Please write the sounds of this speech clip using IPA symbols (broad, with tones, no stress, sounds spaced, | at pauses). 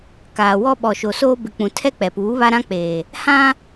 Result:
k aː˨ w ɔ˦ ɓ ɔ˨ ʃ o˨ s oː˦ b ɪ˨ k͡p ũ˨ tʰ ɛ˦ k͡p ɛ˨ p uː˨˦ β a˦ ɾ ã˦ k͡p eː˨ | h ã˦